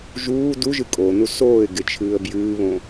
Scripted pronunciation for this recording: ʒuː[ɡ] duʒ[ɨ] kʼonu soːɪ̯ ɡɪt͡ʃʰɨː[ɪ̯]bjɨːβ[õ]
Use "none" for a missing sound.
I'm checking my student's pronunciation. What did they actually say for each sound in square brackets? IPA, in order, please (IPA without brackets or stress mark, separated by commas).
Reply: none, ɨ, ə̯, õ